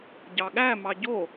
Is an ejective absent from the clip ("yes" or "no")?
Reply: yes